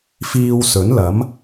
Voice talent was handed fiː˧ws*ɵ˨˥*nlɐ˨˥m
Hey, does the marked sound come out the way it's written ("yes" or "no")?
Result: yes